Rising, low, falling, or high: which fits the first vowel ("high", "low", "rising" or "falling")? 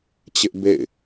high